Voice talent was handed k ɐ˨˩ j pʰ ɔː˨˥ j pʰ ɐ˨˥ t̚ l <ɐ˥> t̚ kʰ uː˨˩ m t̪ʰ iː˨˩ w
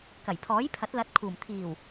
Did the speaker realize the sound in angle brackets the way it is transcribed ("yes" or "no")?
no